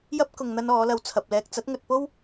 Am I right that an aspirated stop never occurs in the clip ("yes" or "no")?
no